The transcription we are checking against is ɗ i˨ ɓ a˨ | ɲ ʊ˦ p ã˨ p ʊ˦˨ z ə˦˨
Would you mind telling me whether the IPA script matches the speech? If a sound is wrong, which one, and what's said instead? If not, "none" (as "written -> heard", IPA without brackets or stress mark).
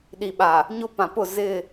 ə˦˨ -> ɪ˦˨